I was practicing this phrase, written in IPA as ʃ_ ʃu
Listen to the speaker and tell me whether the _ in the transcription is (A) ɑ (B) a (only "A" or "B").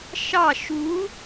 A